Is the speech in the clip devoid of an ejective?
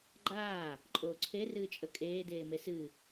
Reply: no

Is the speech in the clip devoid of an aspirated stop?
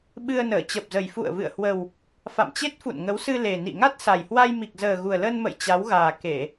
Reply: yes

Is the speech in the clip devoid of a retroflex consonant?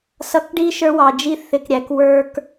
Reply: no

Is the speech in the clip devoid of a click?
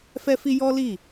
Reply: yes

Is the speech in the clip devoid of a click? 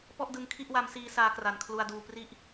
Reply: yes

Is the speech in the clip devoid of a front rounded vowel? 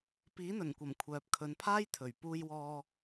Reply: no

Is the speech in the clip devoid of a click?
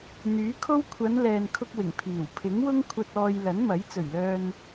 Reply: yes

